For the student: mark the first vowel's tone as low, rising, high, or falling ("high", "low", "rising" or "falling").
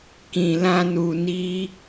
low